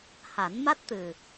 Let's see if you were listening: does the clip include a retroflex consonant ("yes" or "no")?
no